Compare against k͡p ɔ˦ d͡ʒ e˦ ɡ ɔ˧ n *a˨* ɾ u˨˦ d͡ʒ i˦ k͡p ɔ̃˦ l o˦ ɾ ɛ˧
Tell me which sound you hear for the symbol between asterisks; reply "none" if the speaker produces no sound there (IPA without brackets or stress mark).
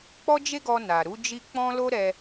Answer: a˨